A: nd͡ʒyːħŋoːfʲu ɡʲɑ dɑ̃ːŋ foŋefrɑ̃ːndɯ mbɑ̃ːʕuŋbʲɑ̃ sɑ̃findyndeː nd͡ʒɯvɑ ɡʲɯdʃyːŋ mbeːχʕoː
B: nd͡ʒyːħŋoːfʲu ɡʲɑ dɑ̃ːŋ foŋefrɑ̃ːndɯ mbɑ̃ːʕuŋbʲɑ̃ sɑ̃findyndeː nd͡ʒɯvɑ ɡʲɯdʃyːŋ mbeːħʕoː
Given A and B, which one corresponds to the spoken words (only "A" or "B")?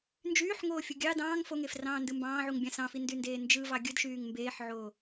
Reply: B